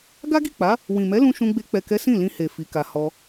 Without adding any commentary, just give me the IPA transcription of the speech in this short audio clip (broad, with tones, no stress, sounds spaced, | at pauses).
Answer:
ɡ a˦ ɡ i˦˨ k͡p a˨˦ | w ĩ˨ m ɛ˨˦ l ũ˧ ʃ ũ˧ ɡ͡b e˧ k͡p ɛ˨ k ɛ˨˦ s ĩ˦˨ l ĩ˧ h e˨ f i˨˦ k a˧ h ɔ˧